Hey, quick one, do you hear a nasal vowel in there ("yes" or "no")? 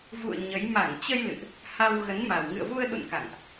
no